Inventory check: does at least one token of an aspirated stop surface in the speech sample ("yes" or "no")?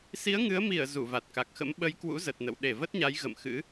no